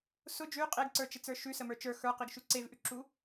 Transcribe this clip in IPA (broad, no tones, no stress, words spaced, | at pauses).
sʊ d͡ʒʉ qʼeɡǀə˞t͡ʃet͡sə˞ ʃʉsəmə˞ t͡ʃə˞ xə˞qiɡʃʉ ǀevʔʉǁu